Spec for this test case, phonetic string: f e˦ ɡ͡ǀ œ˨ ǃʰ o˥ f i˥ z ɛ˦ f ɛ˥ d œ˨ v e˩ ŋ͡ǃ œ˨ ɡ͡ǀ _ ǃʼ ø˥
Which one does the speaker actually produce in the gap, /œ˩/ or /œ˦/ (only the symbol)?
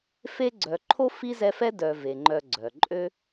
œ˩